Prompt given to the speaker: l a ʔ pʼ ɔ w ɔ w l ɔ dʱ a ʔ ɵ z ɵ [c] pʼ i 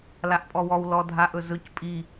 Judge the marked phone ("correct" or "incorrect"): correct